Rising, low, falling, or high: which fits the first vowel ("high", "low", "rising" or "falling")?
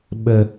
low